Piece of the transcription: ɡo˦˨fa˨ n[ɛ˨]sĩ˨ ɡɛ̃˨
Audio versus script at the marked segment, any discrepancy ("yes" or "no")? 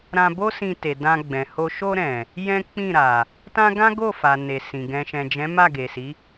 yes